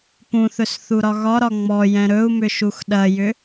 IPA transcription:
p ũ θ ɵ s θ u ɾ ɒ ɣ ɒ ɾ ɒ ŋ͡m ɔ j ɛ̃ ɾ ɵ u̯ m ʏ ʃ u x ɗ ɐ j ʏ

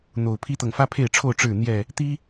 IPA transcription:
n̪ o˨˩ ʊ̯ pʰ i˦ t̪ ɤ˨ ŋ f ä˦ pʰ e˥˨ ɪ̯ ʈ͡ʂʰ o˥˨ ʊ̯ ʈ͡ʂ ɻ̩˥˨ n̪ j ɛ˥˨ | t̪ i˦

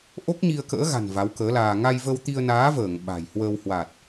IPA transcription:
ʔ o˦˥ k̚ ɲ i˧ ə̯ k ə̰ː˧˥ ɣ a̤˨˩ n v a˨˦ w k əː˨˦ l aː˧ ŋ a˧ j v ə˧ w t̪ i˧ ə̯ n aː˨˦ v əː˧˩ ŋ ɓ a̤˨˩ j h w ə˧ w h w a˨˩ t̚

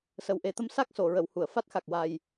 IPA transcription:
s ə˨˩ w ʔ e˨˩ t̪ ə˧ m s a˦˥ k̚ s o˨˩˨ ɹ ə˨˩˨ w h u˨˩˨ ə̯ f a˦˥ t̚ x a˨˩ k̚ w a˨˩ j

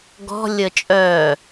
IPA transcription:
ɡ ɔ̤ lʲ ə t͡ʃʼ œ

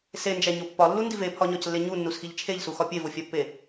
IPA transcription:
s e n d͡ʒ æ ɲ o pː ɒ lː u n d i v e pʰ ɒ ɲ ɒ c lː e ɲ u nː u s x i ʎ t͡ʃʰ e ʎ s u x ɒ pʲ e v o fʲ æ pː e

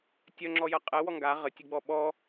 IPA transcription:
tʲ œ ŋ͡ǁ ɔ j ɐ qʼ ɛ w ɔ ŋ ɡ a ʁ ə tʲ ə ɡ͡b ɔ ɓ ɔ

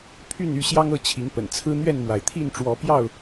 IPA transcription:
pʰ y˥˨ n y˥˨ ɕ j ɑ˦ ŋ ɤ˥˨ t͡ɕʰ i˨˦ ŋ p ə̰˨˩ n t͡sʰ ɹ̩˦ n̪ ɥ ɛ˥˨ n m w a˩ ɪ̯ t̪ʰ i˥˨ n ʈ͡ʂ w ɔ˨˦ p j ɑ˥˨ ʊ̯

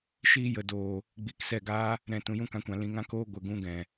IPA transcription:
ʃ iː˧ j ə˨ d oː˨ | ɡ͡b i˨ k s ɛ˦˨ ɡ aː˦ | ɾ ɛ̃˨ t ũ˨ j ũ˦ k ã˧ kʷ ã˨ l ĩ˨ ŋ ã˦ k oː˦ ɡʷ ə˨ ɡ ũ˦ ɡ ɛ̃˨

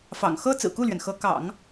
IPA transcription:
f ɑ̰˨˩ ŋ x ɤ˥ t͡s ɹ̩˨˩ k u˥˩ l ɥ ɛ˩ n x ɤ˧˥ k ɑ̰˨˩˦ ŋ

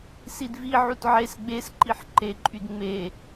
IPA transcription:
s i d v i ʕ u t ʕ e s ɡ͡b e s ǃ i ħ ǃ e ǃʼ y d ŋ͡m e

